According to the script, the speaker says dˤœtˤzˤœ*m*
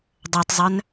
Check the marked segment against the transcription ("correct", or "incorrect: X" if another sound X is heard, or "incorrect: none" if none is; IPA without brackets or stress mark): incorrect: n